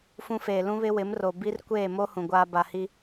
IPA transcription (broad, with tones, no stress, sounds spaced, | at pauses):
f ũ˦ f eː˨ l ũ˦ β ɪ˦ w ɪ˨˦ m r o˨ b i˦ r kʷ eː˦˨ m o˦ h ũ˨ ɡʷ aː˦ b a˨ h i˦